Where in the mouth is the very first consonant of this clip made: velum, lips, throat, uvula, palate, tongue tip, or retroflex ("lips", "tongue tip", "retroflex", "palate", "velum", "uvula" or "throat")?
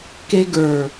velum